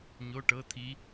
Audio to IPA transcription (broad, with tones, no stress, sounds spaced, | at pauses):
ɲ o˧˥˧ ʈ ɤ˧˥˧ t̪ʰ i˧˥